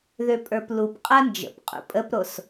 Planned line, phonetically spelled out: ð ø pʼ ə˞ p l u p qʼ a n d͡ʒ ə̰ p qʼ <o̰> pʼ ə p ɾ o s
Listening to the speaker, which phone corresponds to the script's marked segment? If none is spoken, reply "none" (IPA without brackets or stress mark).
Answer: ṵ